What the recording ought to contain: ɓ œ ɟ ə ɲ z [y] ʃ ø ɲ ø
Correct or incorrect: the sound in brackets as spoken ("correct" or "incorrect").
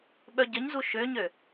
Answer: incorrect